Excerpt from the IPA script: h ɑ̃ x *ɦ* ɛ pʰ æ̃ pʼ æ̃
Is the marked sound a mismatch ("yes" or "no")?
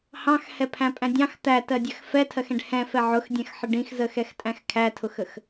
yes